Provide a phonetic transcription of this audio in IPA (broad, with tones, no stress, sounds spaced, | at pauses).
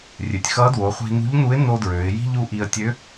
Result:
rʲ ø˩ tʲ x ʌ˧˥ d w o˩˧ χʷ i̤˧ n ṳ˧˥ ʎ n u˧˥ ɪ̯ n o˥ d ɹ ø˩˧ ɪ̯ j i̤˥ ʎ u˧˥ ʔ i˧ ə̯ tʲ ø˧˥